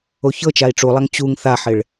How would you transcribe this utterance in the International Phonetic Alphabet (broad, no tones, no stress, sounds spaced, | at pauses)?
o ç ɤ t͡ʃ a i̯ ʈ͡ʂ u lˠ a ŋ t͡ɕ u ŋ θ a ħ ɪ ɭ